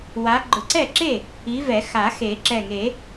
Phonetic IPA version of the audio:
w a˨˦ ɡ͡ǃ ʊ˨˩˦ ǀ ɛ˥˩ ǁ e˥˩ | i˨˦ v ɛ˨˩˦ x a˨˩˦ x e˨˩˦ ǁ ɛ˧˩ ŋ e˨˩˦

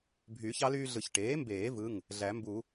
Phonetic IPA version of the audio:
bʱ yː˨˩˦ ç ɑ˩˥ l yː˦ ɮ ɯ˨˩˦ ç ʈ eː˩˥ m b eː˨˩˦ v ɯ˩˧˩ ŋ | ɮ æ˨˩˦ m b u˨˩˦

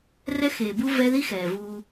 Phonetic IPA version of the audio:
r ɛ˦ x eː˨ b u˦ v ɛ˦ ð i˦ x ɛː˨ v uː˧

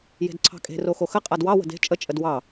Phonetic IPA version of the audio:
j e̤ d ǀʰ ɑ̤ kʼ e̤ r o x o x ə qʼ a d w ɑ w ə̤ d e̤ t͡ʃʼ ə t͡ʃʼ ə d w ɑ

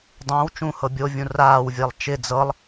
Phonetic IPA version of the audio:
dˤ ə̃ː w t͡ʃ ũ h ɤ bʲ o vʲ ũ r aː w vʲ ɛ lˠ t͡ʃ ɪ d͡z ɤ lˠ

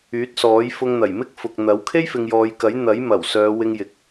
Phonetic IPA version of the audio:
yː˨˥ t̚ s ɔː˨˥ j f ʊ˧ ŋ n̪ ɐ˨˩ j m ɪ˥ k̚ f ʊ˨ k̚ n̪ ɐ˨˥ w kʰ e˥ j f ɪ˨ ŋ j ɔː˨˧ j k ɐ˨˥ j n̪ ɐ˨˥ j m ɐ˨˩ w s œː˨˧ w ɪ˧ ŋ j ɪ˨ k̚

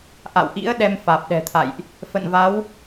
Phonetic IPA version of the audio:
ʔ a̰˧˨ w ʔ ḭ˧˥ ə̯ ɗ ɛ˧ m f aː˨˩ p̚ ɗ ɛ̤˨˩ t̪ʰ a̰˧˨ j ʔ | f ə̰˧˨ n v a˨˦ w

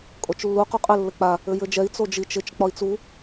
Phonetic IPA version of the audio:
kʼ o t͡ʃ lː u q u qʼ ɘ lː ɘ k͡p a | ɘ j ɘ d͡ʒ ɛ i̯ t͡s o d͡ʒ i t͡ʃ ɪ t͡ʃ k͡p ɒ i̯ t͡s u

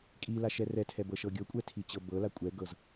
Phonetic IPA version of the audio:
kʼ i l a ʃ ɛ r ɛ tʰ ɛ b ɤ ʃ ɤ ɡʲ ɤ kʷʼ ɛ tʰ i t͡ɕ ɤ b ɤ l a kʷʼ ɛ ɡ ɤ z

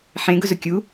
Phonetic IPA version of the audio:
ħ ẽ ɡ ʊ z ʊ kʲ u

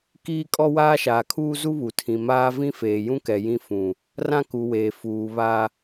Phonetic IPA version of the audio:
k iː˦ kʼ ɔ˦ w aː˦ ʃ aː˨ kʰ uː˦ z u˦ β u˨ tʰ ĩ˨ m aː˦ v ĩ˦ f eː˨ j ũ˦ k ɛ˨ j ĩ˦ f ũ˨ | r ã˦ k u˨ w eː˨ f uː˨ β a˦

